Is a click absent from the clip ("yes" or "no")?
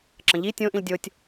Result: no